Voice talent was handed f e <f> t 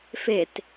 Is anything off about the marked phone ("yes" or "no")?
yes